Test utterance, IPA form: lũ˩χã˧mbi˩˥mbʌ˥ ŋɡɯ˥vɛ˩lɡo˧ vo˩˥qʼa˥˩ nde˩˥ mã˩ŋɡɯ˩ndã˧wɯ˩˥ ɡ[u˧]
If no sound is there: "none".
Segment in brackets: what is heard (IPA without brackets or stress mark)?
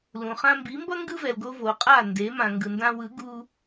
u˧